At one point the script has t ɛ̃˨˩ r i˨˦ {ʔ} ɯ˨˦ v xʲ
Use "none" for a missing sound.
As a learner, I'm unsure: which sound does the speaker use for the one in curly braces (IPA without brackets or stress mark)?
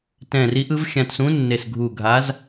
ʔ